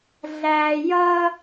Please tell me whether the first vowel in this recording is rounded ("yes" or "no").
no